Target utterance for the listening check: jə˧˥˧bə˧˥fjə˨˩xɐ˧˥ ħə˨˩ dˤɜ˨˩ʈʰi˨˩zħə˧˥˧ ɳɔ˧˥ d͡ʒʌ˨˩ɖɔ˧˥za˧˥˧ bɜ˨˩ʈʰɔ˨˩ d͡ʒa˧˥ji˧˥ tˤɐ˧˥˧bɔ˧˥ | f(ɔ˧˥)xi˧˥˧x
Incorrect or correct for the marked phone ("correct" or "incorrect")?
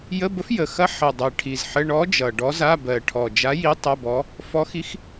correct